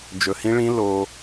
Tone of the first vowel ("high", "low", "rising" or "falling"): low